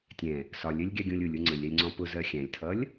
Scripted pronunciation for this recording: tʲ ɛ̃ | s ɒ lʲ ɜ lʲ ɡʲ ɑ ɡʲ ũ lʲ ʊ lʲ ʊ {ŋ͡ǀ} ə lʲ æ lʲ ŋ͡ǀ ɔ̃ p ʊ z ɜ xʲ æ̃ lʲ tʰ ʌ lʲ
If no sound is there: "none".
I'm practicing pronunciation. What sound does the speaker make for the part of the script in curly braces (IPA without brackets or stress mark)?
ŋ͡ǀ